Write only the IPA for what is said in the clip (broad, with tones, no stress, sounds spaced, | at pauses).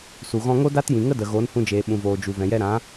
s u˨ ɣ ɔ̃˧ ŋ o˦ d a˦ t j ĩ˨ ŋ ə˦ d ə˨ ɣ oː˨˦ n h ũ˧ d͡ʒ eː˨ ɓ ũ˨ v oː˨ d͡ʒ u˨ v ɛ̃˨ j ɛ˧ ɾ ã˨˦